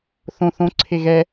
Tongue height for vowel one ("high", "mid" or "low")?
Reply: mid